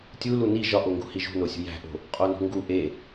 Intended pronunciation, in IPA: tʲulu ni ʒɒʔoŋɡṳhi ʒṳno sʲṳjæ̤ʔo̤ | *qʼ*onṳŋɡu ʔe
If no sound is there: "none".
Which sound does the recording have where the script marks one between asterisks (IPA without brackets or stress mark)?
qʼ